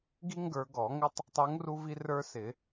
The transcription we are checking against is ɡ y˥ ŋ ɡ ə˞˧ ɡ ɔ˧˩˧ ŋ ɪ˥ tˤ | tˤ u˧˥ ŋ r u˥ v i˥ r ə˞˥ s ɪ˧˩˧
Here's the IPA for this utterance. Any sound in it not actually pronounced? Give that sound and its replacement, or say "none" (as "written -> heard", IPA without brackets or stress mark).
y˥ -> i˥